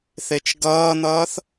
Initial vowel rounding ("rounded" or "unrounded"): unrounded